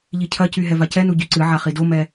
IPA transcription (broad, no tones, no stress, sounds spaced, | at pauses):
ʎ i cʰ ɐ c y ɦ ɛ v a c ɛ n u ɟ y ǀ ɨ ʕ a χ i d o m ɛ